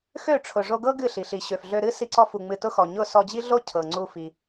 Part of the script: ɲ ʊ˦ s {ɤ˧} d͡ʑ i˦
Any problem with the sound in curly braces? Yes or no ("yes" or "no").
yes